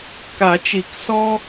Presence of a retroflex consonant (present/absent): absent